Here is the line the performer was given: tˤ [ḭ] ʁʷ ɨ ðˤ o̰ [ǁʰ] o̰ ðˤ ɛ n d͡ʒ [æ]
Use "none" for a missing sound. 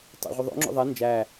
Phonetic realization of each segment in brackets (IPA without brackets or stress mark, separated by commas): ḭ, ŋ͡ǁ, æ